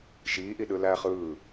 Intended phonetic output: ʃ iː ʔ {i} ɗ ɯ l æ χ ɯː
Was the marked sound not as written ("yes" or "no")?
no